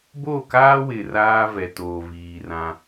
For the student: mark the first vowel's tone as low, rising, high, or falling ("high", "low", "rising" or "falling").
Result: falling